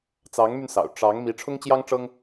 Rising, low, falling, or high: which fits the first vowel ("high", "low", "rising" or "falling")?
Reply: rising